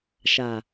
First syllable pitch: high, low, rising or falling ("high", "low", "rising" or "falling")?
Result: low